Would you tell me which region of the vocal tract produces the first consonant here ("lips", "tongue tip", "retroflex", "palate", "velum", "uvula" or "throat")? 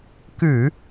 velum